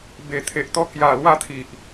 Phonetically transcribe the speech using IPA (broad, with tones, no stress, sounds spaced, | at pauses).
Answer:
b e˨˩ t̪ʰ e˨ ʔ t̪ ɔ˧ k j a˨˩ l w a˧ t̪ʰ i˨ ʔ